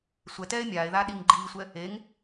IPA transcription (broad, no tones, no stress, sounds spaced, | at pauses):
sʷ ɛ t ɛː e̯ mʲ aː e̯ ð aː ɗ i ŋ ɡ͡ǃ iː sʷ ɛ | e ŋ